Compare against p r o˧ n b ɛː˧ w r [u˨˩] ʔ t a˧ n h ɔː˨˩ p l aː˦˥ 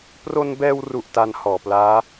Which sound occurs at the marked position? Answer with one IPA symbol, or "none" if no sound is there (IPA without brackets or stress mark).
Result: u˨˩